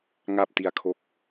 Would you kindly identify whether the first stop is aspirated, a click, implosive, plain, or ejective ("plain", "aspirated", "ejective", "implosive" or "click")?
plain